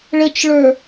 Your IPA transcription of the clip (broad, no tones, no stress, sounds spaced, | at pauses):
ɭ ɘ t͡ʃ ɭ ə˞